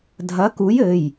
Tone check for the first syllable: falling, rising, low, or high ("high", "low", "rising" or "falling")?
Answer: rising